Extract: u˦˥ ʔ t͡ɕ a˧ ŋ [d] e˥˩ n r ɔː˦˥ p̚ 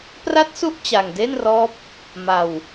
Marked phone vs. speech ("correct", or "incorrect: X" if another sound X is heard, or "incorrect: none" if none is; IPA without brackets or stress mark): correct